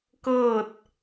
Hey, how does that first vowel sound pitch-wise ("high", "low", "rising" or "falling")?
falling